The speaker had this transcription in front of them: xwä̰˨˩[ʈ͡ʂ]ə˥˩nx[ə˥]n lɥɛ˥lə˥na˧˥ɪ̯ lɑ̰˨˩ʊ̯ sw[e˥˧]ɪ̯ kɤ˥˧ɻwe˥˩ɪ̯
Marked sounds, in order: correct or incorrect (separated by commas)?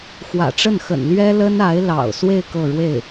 correct, incorrect, correct